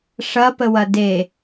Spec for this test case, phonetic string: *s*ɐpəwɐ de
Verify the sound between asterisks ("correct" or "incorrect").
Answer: incorrect